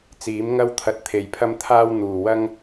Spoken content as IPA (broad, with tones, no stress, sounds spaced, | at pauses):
t͡s iː˨˥ m ŋ ɐ˧ w t̪ʰ ɐ˨ t̚ t̪ʰ e˨˩ j pʰ ɐ˧ m t̪ʰ aː˧ w n̪ uː˨˩ w ɐ˧ ŋ